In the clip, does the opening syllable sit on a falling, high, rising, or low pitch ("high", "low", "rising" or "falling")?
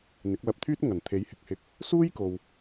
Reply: rising